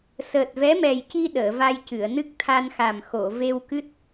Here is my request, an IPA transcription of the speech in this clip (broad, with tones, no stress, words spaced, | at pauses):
səː˨˩t̚vɛ˧˥mɛ˨˩jci˧ ɗəː˨˩˨va˧jcɨ˨˩˨ə̯ nɨ˦˥k̚t̪ʰa˧nxa˨˩m xo˨˩˨ ve˧wkɨ˦˥t̚